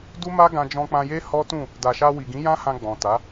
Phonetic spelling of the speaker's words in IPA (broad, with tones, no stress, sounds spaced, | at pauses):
d u˦ m a˦ ɡ ã˧ d͡ʒ ɔ̃˧ k͡p ã˧ j e˦ h ɔ˦ t ũ˦˨ | d a˨ ʃ a˧ w i˨ ɡ ĩ˨˦ j ã˦ h ã˧ ɡ͡b ɔ̃˨ t a˨˦